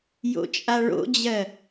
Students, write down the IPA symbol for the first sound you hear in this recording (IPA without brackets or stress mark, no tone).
j